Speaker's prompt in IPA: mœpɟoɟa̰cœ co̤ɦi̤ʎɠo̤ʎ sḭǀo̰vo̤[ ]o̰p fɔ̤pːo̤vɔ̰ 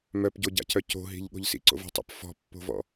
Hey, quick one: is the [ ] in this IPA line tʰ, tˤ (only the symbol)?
tˤ